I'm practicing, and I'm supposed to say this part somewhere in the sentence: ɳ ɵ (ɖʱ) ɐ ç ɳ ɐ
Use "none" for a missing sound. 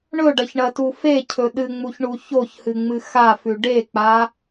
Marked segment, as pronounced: ɖ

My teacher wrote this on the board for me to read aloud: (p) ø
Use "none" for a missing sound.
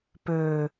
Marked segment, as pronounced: p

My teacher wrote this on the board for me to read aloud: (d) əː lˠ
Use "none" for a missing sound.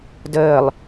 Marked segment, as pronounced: d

